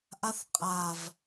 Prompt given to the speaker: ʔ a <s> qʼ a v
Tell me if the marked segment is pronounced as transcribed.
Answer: no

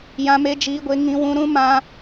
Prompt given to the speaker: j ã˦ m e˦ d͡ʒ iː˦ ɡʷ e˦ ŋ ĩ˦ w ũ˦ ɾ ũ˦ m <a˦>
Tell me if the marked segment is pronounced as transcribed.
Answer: no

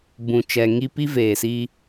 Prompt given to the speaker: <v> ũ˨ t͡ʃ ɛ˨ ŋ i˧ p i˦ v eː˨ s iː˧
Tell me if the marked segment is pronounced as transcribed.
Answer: no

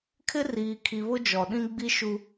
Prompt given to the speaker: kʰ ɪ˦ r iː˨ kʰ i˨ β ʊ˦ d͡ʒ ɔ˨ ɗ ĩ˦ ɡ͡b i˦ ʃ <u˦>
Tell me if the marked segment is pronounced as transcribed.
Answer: yes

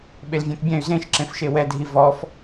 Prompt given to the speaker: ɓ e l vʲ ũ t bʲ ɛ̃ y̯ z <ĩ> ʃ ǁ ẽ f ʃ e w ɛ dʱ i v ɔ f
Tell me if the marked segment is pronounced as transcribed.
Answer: no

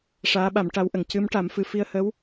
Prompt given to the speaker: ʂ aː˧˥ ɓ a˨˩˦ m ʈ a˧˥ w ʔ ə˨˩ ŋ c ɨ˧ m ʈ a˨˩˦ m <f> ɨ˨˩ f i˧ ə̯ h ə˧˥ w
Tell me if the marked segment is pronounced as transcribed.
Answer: yes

